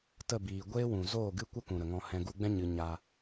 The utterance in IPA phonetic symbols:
tə˦˨biː˨ ɡʷeː˦wũ˨ zoː˦˨ɡɨ˦kʷə˦ kũ˨ɾə˨ ŋɔ̃˧hɛ̃˧ ɡu˧ɡ͡bɛ̃˦ ɲɨ˦ ɲa˧

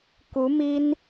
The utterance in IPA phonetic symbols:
ku˧˥mi˥n

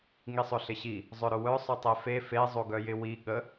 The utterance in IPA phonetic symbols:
ŋisˤʊɬɪɕi | zˤœɾʊwœ sˤʊtˤefe fe zˤoɡœjɪwi ɠə

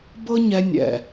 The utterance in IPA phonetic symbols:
bɤ˦ɲɛ˧ nʲɛ̰˨

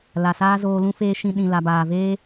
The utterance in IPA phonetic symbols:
la˨saː˦zoː˧ lũ˦feː˦ʃĩ˧ ɗĩ˨la˨baː˨veː˦

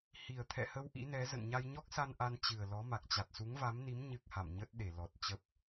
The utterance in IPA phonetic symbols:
hi˨˩ə̯ t̪ʰɛ̰˧˨hə˧w ʔḭ˧˥nɛ˨˦ zə̰˧˨nɲa˧jɲɔ˦˥k̚sa˧n ʔa˧nt͡ɕɨ˨˩ə̯ lɔ˨˦ma˨˩k̚ t͡ɕa˨˩t̚su˨˦ŋva˨˦mni˨˦m ɲɨ˦˥k̚ha̰˧˨m ɲə˦˥t̚ ɗe˧˩lɔ˨˩t̚ t͡ɕə˦˥p̚

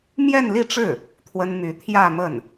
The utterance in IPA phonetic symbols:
mjɛ˥˧nli˥˧ʈ͡ʂɻ̩˥˩ | t̪ʰwə˥n my˧˥ t̪ʰjä˥˧mə˥˩n

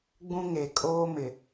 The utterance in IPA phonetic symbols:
ɡ͡bũ˦ŋe˨ kʼoː˦mɪ˨

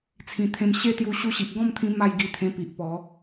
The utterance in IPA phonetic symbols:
t͡sʰĩ˨˩ t̪ʰẽ˧m ɕe˥˧t̪ju˧ ɕu˧ɕi˨ʔɡɔ̃˥˧mt̪ʰĩ˧ ma˥˧jɡi˧t̪ʰẽ˧pi˨ʔ pɔ˨˦

